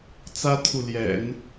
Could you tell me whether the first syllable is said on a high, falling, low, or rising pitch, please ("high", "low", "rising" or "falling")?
high